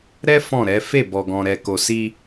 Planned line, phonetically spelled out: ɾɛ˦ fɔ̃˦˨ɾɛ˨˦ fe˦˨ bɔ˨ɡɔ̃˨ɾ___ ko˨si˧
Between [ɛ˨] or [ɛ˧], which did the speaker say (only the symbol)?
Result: ɛ˨